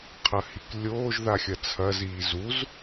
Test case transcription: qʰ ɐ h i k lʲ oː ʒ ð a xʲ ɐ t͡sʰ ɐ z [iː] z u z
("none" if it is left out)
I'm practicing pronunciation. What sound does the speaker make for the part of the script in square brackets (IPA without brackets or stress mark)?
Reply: iː